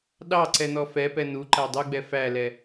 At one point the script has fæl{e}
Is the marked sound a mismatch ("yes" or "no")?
yes